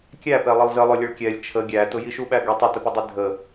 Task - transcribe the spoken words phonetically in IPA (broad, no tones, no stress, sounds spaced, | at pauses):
kʲ æ p ɛ lˠ ɪ lˠ z ə lˠ ʊ lʲ ə ɭ kʲ ɛ lʲ t͡ʃʰ ə ɡʲ æ t ʊ j i ʃ u ɓ æ ɡ ɛ tˤ ɪ t ə p ɪ dˤ ɛ dʱ ə